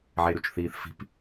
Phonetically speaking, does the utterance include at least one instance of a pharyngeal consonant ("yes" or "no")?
yes